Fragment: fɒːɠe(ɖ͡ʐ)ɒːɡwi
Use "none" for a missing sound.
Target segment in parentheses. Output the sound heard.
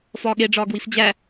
ɖ͡ʐ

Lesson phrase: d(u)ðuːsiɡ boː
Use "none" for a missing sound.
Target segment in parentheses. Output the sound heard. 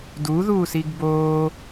u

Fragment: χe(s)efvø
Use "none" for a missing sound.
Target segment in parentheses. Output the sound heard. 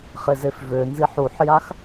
z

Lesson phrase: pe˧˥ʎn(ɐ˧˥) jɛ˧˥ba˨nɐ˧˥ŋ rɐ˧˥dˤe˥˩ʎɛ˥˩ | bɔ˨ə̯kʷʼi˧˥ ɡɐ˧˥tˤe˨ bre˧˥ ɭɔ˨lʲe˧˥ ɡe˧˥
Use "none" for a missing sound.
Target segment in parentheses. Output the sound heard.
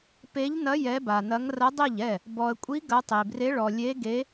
ɐ˧˥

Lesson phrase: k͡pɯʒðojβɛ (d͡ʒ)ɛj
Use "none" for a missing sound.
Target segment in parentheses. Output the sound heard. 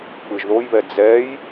d͡z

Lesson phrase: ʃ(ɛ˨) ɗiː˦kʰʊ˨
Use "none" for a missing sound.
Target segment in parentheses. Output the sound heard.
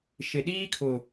ɪ˨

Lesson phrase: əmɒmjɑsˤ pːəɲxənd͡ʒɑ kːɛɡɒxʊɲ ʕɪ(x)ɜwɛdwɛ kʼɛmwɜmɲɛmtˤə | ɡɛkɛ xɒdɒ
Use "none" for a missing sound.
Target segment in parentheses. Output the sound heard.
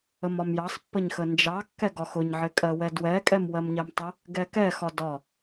kʼ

